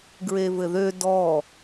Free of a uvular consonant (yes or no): yes